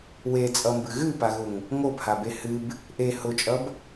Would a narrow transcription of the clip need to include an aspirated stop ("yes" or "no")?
no